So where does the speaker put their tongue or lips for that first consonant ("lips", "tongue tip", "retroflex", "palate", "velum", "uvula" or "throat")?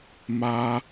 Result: lips